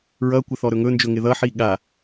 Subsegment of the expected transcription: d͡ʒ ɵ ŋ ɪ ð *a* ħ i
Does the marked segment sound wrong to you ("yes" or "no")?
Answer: yes